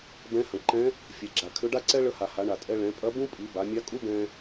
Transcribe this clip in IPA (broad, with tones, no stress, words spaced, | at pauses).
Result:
bɛ̃˧˥hɐ̃˩ ǃɛ̃˧˥ | fʲɛ˩ɡ͡ǁa˩ kʰʏ˧˥ɖa˥ ǀɛ˥ɭə˧˥ha˩ha˩˧ ɳa˩ tʼɛ˧ ɭɛ̃˩˧pʼɐ˧˥bũ˥pʼi˩˧ ba˩˧mʲa˧˥kʼu˥ bɛ̃˧